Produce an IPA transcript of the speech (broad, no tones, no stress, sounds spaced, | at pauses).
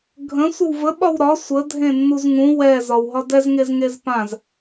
ɡʱ ə̃ sʷ ə w v ə ɓ ɒ w ɾ ɒ sʷ ə dʱ ẽ nː u z ŋ ũ w ɛ z ɒ w ɦ ɒ d ɛ z ŋ e z ŋ e z p ã z